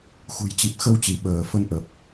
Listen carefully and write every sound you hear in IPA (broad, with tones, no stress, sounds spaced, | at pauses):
x ṳ˨˩ j t͡ɕ i˨˩ p̚ x ə˧ w t͡ɕ i˧˩ ɓ əː˧˩ f ə˨˦ n ʔ ə˨˩ p̚